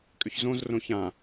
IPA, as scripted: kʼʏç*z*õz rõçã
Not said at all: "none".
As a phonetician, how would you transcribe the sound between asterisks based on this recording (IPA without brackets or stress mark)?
z